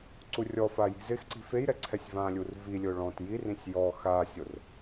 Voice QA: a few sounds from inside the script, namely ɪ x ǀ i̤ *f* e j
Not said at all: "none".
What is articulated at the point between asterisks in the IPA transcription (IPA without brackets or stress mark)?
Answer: f